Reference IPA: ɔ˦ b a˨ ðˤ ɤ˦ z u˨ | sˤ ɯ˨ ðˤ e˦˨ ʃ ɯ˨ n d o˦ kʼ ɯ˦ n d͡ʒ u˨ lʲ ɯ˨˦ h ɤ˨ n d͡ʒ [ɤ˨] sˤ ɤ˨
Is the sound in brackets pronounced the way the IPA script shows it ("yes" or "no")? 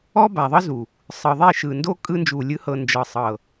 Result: yes